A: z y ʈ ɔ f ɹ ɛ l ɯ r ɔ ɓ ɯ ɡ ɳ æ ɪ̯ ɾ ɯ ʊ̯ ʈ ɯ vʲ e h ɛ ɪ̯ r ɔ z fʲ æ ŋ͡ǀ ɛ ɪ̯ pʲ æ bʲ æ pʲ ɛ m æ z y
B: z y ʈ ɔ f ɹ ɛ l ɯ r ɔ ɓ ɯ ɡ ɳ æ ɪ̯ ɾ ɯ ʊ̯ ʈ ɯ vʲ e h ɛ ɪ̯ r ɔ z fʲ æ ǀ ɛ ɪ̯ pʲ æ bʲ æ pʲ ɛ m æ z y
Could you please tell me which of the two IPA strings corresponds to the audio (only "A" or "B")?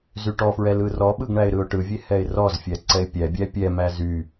B